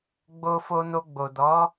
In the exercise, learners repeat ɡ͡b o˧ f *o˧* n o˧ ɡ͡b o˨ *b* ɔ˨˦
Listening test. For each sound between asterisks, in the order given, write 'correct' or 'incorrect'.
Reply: correct, incorrect: d

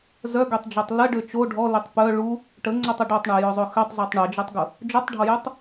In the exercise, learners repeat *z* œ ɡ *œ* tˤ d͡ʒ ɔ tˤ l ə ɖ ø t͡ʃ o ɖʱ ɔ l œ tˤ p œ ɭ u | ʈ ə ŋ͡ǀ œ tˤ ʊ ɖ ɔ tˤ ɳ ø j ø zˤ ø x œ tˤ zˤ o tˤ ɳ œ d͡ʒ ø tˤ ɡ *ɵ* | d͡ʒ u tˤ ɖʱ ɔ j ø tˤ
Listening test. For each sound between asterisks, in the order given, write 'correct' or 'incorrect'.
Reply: correct, incorrect: ø, incorrect: ʊ

